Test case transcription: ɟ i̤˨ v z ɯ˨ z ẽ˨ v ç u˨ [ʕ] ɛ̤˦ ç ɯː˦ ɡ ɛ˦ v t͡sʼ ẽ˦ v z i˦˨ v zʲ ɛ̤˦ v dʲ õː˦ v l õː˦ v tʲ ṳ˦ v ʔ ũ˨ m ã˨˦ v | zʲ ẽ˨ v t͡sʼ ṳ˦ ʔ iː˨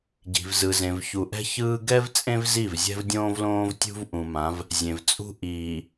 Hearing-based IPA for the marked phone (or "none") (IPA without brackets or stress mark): ʔ